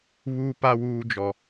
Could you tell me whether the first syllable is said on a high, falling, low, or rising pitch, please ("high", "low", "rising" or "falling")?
high